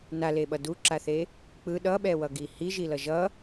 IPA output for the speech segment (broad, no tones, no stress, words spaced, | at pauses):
naleɓʌ duǁaθe | k͡pɯ ɗʌɓɛwʌɡi hiʒilʌ ʒʌ